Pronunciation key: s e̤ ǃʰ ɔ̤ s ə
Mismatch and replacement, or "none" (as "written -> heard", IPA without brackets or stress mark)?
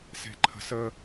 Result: ɔ̤ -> ə̤